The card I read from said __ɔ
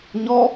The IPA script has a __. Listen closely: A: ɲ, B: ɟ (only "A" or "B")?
A